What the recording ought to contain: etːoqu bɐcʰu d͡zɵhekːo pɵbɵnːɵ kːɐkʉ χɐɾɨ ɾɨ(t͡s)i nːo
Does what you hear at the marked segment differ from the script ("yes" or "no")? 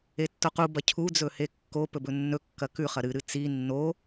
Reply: no